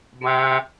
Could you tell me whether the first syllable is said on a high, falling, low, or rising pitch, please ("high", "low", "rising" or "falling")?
high